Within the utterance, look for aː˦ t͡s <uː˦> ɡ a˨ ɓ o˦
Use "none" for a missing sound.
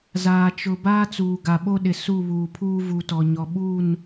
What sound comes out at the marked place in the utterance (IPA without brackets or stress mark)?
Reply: uː˨